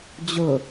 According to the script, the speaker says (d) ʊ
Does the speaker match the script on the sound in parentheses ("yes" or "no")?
no